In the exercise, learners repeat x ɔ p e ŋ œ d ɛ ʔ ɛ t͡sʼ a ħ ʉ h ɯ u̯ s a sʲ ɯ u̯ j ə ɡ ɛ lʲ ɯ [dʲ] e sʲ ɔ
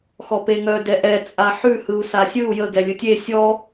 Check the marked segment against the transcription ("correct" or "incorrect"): incorrect